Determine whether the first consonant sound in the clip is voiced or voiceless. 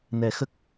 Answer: voiced